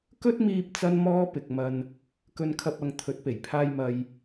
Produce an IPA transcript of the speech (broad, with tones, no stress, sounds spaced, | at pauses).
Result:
k ɵ˥ t̚ m iː˧ p̚ t͡s ɐ˥ n m ɔː˥ p ɪ˨ k̚ m ɐ˨ n | k ɵ˧ n kʰ ɐ˧ p̚ ɐ˨˧ ŋ t̪ʰ ɵ˨˥ t̚ p e˨˩ j pʰ aː˧ j m ɐ˨ j